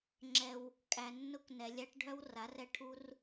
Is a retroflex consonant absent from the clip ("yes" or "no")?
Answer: no